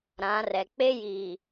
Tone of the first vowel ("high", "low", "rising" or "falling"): rising